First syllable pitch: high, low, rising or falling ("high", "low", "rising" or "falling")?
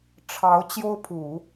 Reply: rising